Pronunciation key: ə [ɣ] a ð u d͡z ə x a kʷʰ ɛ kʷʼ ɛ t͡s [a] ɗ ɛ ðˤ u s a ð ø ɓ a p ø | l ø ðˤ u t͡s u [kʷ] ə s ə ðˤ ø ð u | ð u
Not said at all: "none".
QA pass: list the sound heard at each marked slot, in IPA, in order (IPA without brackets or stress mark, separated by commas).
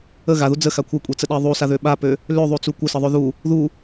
ɣ, ə, kʷ